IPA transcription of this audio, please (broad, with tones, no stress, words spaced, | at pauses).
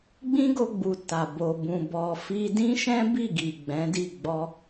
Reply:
ɡ͡bĩ˦ɡo˧ɡ͡bu˨ ta˨bo˨ bũ˨bɔ˨fi˧ dĩ˦ʃɛ̃˦bi˦˨ɡi˨ ɡ͡bɛ̃˨˦di˦˨ ɡ͡bɔ˧